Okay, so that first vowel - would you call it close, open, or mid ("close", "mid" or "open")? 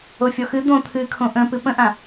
mid